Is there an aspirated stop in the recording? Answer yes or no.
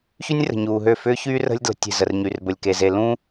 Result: no